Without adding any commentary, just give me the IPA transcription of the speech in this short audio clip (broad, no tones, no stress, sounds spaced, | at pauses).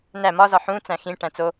n æ m ɒ z ɒ ħ ũ t͡s æ̃ x ĩ ʈ æ̃ t͡s o